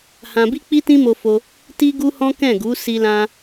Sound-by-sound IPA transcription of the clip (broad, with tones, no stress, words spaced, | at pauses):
hã˧bi˦k͡pi˦ tĩ˦mo˧fo˧ | ti˦ɡu˦hɔ̃˦ kɛ̃˦˨ɡu˨˦ si˧lã˧